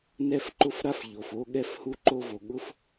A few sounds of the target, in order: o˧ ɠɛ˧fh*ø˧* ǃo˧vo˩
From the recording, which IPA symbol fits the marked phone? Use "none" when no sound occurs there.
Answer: u˧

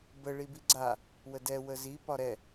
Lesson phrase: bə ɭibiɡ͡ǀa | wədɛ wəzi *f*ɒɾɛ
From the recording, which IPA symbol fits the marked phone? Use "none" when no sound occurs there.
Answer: p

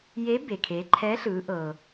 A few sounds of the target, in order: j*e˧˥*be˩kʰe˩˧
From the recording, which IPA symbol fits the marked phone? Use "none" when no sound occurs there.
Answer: e˧˥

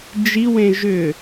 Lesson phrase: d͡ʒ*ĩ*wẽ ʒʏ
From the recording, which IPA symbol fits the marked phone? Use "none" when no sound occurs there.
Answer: i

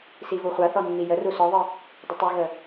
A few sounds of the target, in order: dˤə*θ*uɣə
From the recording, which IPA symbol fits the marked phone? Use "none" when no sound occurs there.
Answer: tˤ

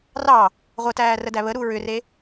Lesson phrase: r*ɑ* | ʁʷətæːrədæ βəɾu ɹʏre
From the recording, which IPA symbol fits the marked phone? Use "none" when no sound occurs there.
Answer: ɑ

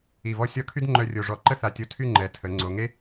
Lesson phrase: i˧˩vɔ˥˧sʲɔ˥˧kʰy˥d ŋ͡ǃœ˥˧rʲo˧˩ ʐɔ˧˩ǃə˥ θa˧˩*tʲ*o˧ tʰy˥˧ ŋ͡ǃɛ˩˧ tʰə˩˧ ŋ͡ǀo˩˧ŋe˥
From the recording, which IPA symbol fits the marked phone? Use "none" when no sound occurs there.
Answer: tʲ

